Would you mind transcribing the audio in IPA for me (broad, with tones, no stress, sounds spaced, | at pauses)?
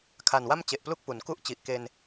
kʰ a˨˩ n w a˥˩ m t͡ɕ e˨˩ ʔ p l u˥˩ k̚ p u˩˦ n k u˥˩ ʔ t͡ɕ i˨˩ ʔ k e˧ n